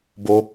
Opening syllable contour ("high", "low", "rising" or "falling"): high